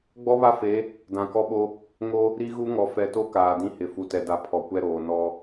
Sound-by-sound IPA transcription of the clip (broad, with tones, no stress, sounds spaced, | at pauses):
ɡ͡b ɔ˦ β a˦ f e˨˦ | d ã˨ k ɔ˦ ɓ o˦ | ŋ o˦ | ɾ i˦ ɣ u˦ ŋ ɔ˨ f ɛ˨ t o˦ k aː˨ d ĩ˦ h ɪ˨ f u˨ t ɛ˨ d a˨ pʰ ɔ˨ kʷ ɛ˦ ɾ oː˨ n ɔ˦